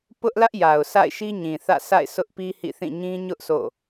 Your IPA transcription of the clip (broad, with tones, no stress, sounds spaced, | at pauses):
p ʊ˦ ʔ l ä˦ ʔ j a˨ ʊ̯ sʰ a̰˦˨ ɪ̯ ʃ i˦ ɲ ĩ˨ θ ä̰˦˨ s a̰˦˨ ɪ̯ s ʊ˦ ʔ p i˦ h ḭ˦˨ θ ĩ˦˨ ɲ ĩ˦ ɲ ʊ˦ ʔ s o̰˦˨